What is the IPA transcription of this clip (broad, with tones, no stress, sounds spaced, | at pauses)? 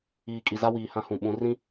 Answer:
iː˨ kʼ i˨ z a˦ w iː˨ h ã˦ h ũ˨ ɓ ũ˨˦ r ĩ˦